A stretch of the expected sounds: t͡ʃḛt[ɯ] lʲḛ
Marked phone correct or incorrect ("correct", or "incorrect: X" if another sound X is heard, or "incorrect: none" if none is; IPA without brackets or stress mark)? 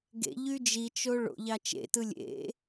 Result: correct